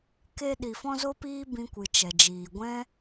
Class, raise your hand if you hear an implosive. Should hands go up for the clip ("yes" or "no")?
yes